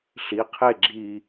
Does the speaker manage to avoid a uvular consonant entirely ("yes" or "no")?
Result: no